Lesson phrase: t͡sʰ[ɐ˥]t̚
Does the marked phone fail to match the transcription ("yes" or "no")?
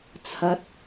yes